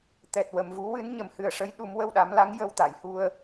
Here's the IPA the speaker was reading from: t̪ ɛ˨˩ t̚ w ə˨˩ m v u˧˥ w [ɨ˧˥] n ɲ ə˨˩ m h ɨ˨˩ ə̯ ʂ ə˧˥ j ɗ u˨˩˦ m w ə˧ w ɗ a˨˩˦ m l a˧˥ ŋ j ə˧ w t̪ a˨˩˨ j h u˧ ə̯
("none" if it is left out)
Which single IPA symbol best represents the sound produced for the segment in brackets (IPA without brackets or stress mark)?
ɨ˧˥